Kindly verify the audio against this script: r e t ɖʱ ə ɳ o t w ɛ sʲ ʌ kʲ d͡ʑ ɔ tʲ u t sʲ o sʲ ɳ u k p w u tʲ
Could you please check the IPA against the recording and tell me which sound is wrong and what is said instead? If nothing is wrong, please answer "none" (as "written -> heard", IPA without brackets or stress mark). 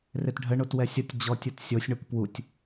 kʲ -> tʲ